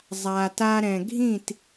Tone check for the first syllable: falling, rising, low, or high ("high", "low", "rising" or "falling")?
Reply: low